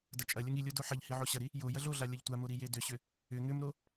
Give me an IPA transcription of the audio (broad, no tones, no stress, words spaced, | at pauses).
dɐt͡ʃʼɐlʲɐŋ ilʲo doħɐʎhi ʕoɕɐɾi | jo jɐɮoɮa lʲɐʎtʷamo ɾijedʏɕʏ | ʏ ŋʏmɾo